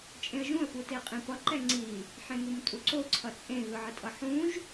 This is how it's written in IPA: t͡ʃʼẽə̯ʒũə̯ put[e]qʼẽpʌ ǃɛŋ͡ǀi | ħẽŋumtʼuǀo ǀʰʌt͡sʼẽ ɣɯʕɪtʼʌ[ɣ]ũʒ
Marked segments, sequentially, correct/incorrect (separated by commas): correct, incorrect